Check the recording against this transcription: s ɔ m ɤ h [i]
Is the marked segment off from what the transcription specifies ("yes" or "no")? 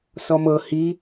no